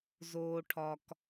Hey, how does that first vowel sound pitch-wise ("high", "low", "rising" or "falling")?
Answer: low